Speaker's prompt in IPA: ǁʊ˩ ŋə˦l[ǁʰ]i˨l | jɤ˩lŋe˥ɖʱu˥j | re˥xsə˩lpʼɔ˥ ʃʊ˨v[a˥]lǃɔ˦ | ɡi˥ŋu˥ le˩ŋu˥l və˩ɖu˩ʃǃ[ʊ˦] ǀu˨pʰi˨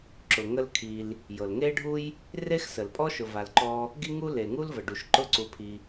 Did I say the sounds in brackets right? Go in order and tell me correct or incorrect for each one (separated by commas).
incorrect, incorrect, correct